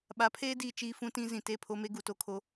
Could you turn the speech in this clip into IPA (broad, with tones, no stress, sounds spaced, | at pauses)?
ɓ a˨˦ pʰ eː˦ d iː˨ t͡ʃ iː˦ f ũ˦ t ĩ˦ z ĩ˨ t e˦˨ pʰ o˦ m e˦ ɡ u˨ t o˦ kʰ o˦